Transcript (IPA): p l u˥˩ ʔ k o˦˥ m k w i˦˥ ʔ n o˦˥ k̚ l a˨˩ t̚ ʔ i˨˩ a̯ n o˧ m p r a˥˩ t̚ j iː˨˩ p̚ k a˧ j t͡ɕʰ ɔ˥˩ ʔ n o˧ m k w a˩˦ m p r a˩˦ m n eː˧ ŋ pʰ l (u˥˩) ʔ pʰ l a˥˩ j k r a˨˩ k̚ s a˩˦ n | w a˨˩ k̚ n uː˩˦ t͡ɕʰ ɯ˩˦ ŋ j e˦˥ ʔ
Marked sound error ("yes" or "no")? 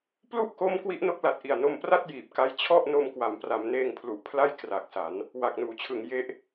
yes